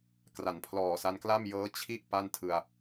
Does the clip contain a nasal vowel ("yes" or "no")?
no